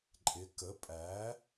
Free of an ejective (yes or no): no